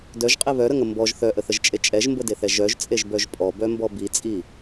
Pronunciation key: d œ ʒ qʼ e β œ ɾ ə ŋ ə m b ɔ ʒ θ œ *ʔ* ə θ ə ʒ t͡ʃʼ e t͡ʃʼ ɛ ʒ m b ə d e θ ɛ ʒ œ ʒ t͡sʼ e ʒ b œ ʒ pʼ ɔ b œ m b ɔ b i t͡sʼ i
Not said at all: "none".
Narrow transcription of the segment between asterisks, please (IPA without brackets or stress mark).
ʔ